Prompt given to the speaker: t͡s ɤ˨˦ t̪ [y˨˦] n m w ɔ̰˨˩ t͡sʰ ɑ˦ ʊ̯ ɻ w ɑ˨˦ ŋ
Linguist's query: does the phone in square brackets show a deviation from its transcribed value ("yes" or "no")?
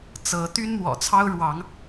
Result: yes